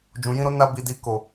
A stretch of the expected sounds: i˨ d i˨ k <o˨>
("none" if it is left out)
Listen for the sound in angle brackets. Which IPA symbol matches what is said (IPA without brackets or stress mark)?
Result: o˨